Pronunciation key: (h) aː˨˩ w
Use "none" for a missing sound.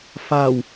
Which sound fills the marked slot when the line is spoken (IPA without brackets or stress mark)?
f